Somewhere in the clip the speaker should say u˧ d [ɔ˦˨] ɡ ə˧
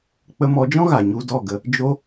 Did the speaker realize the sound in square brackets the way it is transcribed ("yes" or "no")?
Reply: yes